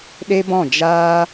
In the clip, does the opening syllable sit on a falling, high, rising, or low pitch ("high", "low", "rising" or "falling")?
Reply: high